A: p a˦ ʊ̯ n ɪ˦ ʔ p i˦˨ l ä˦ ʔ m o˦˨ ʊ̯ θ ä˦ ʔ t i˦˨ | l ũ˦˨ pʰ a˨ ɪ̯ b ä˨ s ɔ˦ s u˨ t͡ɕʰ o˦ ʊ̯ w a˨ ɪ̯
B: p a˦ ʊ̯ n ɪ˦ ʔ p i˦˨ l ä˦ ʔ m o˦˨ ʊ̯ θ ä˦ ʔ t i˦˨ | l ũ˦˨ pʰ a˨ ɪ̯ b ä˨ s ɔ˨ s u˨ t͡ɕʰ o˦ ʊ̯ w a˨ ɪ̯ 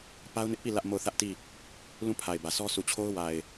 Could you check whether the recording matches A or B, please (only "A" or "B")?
A